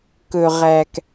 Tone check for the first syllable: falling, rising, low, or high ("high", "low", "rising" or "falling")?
low